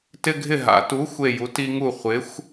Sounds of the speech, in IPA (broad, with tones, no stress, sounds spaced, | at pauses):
t ɪ˦ ɡʱ ɪ˦˨ ɦ a̰˨˥ t u˨˥ xʷ e˦˨ j u˨˥ t i˦ ŋ u˦˨ χʷ ɪ˨˥ xʷ